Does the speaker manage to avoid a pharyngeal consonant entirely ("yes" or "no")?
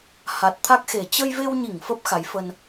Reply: yes